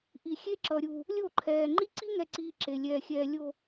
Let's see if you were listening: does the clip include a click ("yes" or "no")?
yes